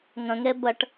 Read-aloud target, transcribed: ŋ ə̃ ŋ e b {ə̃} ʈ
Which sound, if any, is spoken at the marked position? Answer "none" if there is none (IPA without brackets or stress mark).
ə